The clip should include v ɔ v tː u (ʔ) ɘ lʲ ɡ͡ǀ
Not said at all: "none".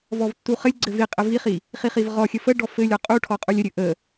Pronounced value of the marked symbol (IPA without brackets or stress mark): χ